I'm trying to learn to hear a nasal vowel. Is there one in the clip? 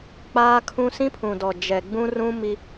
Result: yes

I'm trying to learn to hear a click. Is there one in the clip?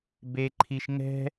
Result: yes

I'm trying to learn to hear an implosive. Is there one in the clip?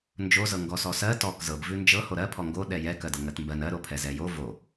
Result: yes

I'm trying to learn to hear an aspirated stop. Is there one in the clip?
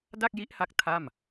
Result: yes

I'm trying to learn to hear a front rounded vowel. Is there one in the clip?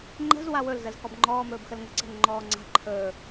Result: no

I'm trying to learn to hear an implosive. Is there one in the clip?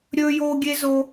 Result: no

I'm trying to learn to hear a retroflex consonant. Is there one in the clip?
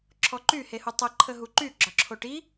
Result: yes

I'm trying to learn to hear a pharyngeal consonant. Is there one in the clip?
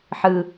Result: yes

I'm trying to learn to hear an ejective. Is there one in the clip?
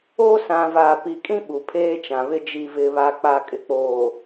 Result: yes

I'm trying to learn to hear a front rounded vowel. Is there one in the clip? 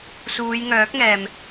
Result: yes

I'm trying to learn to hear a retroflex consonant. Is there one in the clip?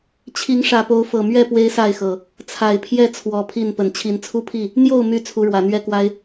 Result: yes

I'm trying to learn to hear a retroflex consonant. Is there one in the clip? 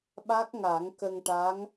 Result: yes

